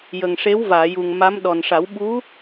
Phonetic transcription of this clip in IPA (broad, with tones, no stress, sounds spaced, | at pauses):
j ə˨˩ ŋ ʂ e˧˥ w v aː˨˩˨ j u˨˩ ŋ m a˧˥ m ɗ ɔ˨˩ n ʂ a˨˩˦ w ɓ u˧˥